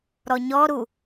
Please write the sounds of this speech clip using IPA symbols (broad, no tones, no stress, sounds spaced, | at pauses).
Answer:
ɾ ɔ ɲ ɔ ɾ u